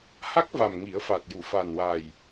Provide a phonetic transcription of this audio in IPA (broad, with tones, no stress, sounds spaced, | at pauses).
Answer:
h a˦˥ k̚ v a˨˩ m ŋ i˨˩˦ ə̯ f a˨˩ t̚ j u˨˩˨ f a˨˩ n w a˨˩ j